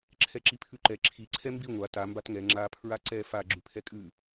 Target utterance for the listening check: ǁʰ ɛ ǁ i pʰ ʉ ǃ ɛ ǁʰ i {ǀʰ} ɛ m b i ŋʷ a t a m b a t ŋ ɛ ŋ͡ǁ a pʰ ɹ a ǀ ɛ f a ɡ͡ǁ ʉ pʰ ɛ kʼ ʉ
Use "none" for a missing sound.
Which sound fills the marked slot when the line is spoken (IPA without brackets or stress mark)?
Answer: ǀʰ